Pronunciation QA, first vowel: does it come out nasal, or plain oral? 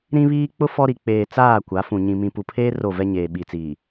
nasal